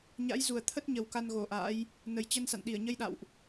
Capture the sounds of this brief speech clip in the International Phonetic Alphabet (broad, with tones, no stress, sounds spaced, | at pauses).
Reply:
ɲ a̰˧˥ j z u˨˩ ə̯ t̪ʰ ə˦˥ t̚ ɲ ə˨˩ w k a˧ n ɣ o˧˩ ʔ a̰ː˧˥ j | n ə˨˩ j t͡ɕ ə˧ n s a̰˧˨ n ɗ i˧˩ ə̯ ɲ ə˧ j ɗ a̰˧˨ w ʔ